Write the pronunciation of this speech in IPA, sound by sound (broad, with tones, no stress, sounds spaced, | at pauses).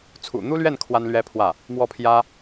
t͡sʰ ṵ˨˩ n̪ u˥ l ɥ ɛ˥˩ n kʰ w a˥ n l ɥ ɛ˥ pʰ w ä˥˩ | m w ɔ˥˩ pʰ j ä˥